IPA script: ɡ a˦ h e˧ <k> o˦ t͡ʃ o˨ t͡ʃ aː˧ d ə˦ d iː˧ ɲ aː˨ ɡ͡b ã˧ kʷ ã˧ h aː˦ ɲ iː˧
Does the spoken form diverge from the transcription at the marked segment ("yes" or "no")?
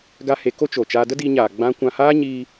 no